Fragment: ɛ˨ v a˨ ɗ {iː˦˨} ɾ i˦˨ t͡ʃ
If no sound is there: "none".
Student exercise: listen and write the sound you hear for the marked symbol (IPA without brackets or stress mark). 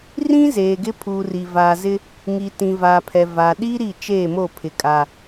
iː˦